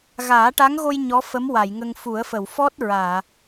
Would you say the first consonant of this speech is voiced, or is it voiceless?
voiced